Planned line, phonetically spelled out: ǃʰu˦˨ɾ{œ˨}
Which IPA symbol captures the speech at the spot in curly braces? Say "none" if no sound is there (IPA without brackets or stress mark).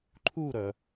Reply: œ˨